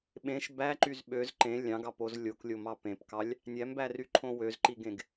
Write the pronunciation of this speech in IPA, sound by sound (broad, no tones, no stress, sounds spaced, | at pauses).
ɓ ẽ ʃ b æ ǃ y z ɓ ø z ǃ ẽ lʲ ɑ̃ ɡ ɑ p o z lʲ o k lʲ o m ɑ p ẽ p k ɑ lʲ | nʲ æ m b æ r y ǃʰ õ w ø z ǃ i ɡ ẽ ɡ